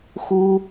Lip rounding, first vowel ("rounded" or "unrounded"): rounded